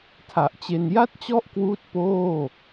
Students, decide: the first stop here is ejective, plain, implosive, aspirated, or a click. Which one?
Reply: aspirated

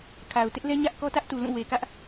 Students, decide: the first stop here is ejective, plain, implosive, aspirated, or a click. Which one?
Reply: aspirated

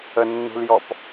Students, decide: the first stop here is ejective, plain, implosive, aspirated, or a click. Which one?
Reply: plain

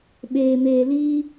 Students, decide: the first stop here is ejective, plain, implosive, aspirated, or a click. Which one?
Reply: implosive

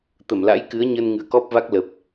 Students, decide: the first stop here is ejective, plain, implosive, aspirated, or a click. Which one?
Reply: plain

